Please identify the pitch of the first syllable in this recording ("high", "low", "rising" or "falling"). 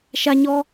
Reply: high